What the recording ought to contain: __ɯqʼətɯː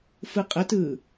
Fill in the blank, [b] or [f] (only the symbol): f